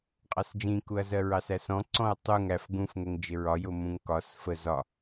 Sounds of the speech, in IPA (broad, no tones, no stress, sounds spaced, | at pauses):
qʼ ɑ s d͡ʒ ĩ k u ɐ̯ z ɜ ɹ ɑ s æ s ɔ̃ ǀ ɔ̃ ɐ̯ tˤ u ŋ æ f ɡ ũ f ŋ ɛ ŋ d͡ʒ ɪ ɹ ɒ j ʊ m ũ ŋ k ɒ s f ə z ɒ